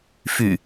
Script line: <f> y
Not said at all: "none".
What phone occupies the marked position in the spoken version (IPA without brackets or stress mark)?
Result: f